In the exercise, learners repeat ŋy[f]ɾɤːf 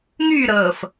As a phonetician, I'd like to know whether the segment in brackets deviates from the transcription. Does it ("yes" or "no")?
yes